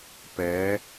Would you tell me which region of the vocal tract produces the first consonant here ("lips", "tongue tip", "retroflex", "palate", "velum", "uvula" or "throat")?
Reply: lips